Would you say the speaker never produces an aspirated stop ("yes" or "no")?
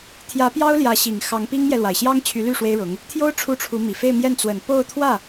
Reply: no